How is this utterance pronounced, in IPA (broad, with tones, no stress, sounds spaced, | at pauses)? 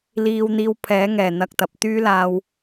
l iː˧ w n̪ iː˧ w pʰ ɛː˨˥ ŋ ɛː˨˩ n̪ ɐ˧ k̚ t̪ ɐ˨ p̚ t̪ yː˥ l aː˧ w